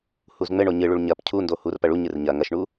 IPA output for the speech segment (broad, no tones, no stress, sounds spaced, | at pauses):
h u z ŋ͡m ɘ ɳ o ɲ ɨ ɭ u ɭ ɲ ɐ p cʰ u n d o h u r p ɐ ɭ u ɲ ɨ r ɲ ɐ ŋ ɐ ʃ ɳ u